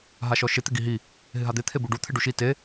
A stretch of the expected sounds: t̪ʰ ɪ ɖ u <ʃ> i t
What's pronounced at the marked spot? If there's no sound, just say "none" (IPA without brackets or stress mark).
ʃ